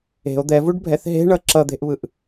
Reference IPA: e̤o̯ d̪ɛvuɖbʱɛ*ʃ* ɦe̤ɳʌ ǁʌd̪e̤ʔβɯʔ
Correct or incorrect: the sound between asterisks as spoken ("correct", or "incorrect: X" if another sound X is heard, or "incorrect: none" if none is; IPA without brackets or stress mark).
incorrect: θ